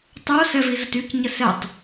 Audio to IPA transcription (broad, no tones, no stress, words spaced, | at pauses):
tˤo sɛvizətyc ɲəsɛtˤ